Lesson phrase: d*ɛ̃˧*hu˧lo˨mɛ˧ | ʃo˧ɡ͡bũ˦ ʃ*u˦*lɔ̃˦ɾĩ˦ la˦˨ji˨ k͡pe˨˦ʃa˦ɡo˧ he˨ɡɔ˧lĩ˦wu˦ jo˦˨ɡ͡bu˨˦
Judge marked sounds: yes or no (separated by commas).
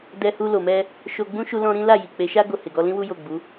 no, yes